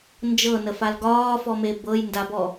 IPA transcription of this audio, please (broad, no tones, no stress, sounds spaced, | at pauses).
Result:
n d͡ʒ ɤ n ə f a l ɡ ɒː f ɔ m e b ɤ j n d a b ɔ